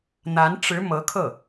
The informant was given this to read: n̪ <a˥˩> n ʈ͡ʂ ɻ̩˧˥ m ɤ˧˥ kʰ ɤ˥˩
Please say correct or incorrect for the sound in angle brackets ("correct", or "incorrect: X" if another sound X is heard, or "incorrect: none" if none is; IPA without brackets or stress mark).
incorrect: a˧˥